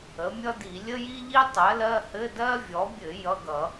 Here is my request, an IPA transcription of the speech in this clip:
ə˩˥mʲʌ˥di˧˩˧ lʲə˥ji˥ʎi˥ tˤɜ˩˥lɜ˧˥˧hɘ˧˥˧ dɜ˥vʲɔ˩˥bʲɘ˧˩˧ jʌ˧˥˧ɡʌ˧˩˧

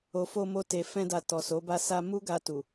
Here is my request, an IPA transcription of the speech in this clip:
o˨fo˧mo˧ te˨ fɛ̃˧da˨ tɔ˨so˨˦ba˦˨ sa˧mu˦ɡa˧ tu˨

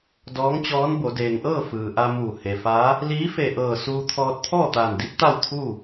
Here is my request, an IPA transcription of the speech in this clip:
dɔː˧˥ŋt͡ɕɔː˧˥nbo˩˧ deː˩ŋʔɤː˥˨ fɯː˩ ʔa˧muː˧˩ he˩faː˧˥ | liː˧˥fe˧˩ʔɤː˧˩ suː˧t̪ʰɔː˧t̚ t̪ʰɔː˥˨t̪aː˧˩ndi˧˥p̚ t̪a˥˨wt̪ʰuː˥˨

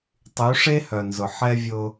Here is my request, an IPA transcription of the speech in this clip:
tˤy˨˦ʂe˦hœ˨nzʊ˨ ħɛ˦vʲʊ˦

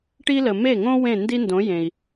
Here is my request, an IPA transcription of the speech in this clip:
ʈi˥lə˩ me˥˩ŋõ˥ wẽ˥˩ ndi˥ndõ˩˥ jẽ˩i̯

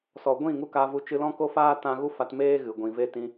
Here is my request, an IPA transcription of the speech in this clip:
sɔ˨ɡʷĩ˦˨ ŋu˦ka˧vu˧ t͡ʃɨ˧lɔ̃˦ko˦faː˦ tã˧ ɣu˦fa˧tmeː˦ ɣɨ˨ɡʷĩ˨ ve˦ tĩ˧

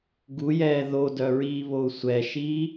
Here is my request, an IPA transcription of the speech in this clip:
ɡujɛː ðodœɹiːβou̯ sʷɛʃiː

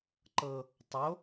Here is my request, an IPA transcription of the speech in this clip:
ǃɤ | tˤo

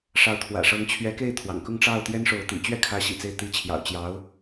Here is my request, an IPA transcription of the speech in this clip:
ʂɑ˧˥ʊ̯t̪ʰwä̰˨˩ʂɤ˧˥ŋ t͡ɕʰɥɛ˧˥ke˥˩ɪ̯ t̪ʰwɑ̰˨˩ŋkʊ˥˧ŋʈ͡ʂɑ˥˩ʊ̯t̪jɛ˥n ʂo˧˥ʊ̯t̪ḭ˨˩ t͡ɕɥɛ˥˩kʰä˧˥ɕḭ˨˩ t͡se˥˩ɪ̯ t̪i˧˥t͡ɕʰjɑ̰˨˩ʊ̯ t͡ɕjɑ˧˥ʊ̯

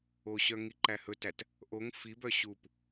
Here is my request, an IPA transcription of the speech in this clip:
oɕœ ŋiǃæhɵtæt | ʔoŋ fibœ ɕup

